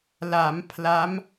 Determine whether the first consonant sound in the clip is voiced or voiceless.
voiced